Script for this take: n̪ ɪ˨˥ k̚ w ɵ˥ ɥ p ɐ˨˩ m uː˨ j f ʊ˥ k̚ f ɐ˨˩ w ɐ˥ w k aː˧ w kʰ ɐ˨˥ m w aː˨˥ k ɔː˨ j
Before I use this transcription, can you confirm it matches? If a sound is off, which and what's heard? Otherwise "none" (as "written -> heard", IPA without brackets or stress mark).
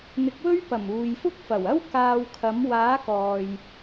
none